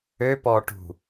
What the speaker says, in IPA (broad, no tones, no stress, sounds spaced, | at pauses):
ø p ɔ ʈ ṳ